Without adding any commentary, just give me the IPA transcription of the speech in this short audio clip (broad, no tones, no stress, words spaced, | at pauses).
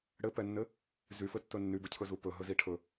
ɽɘpɛnːɘ | zyfɘtːɵ nːybɘcʰɵzu pɵɦɵzi ʈʰɵ